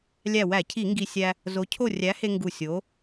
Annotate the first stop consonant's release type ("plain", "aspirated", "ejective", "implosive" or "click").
aspirated